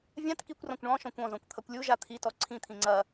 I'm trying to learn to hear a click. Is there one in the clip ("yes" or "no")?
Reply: yes